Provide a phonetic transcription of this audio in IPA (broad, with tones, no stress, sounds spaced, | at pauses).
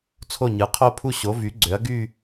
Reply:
t͡sʰ o˥˩ ɲ ɯ˩˥ qʰ o˥˧ pʰ u˥˧ ɕ o˩˥ v y˩˥ ɡ͡ǀ ø˩˥ ɐ̯ ɡ y˥˧